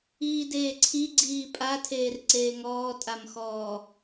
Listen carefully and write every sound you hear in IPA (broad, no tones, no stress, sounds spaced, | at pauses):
iː d eː ǀʰ i ɡ͡ǀ iː pʼ a tʰ eː r ǀ eː ŋ ɔː tʼ a m x ɔː